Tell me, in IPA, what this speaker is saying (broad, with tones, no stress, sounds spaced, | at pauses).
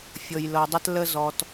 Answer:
fʲ ɤ˨ j l ɤ˨ dˤ ə˦ t l ə˦ z ɔ˨ t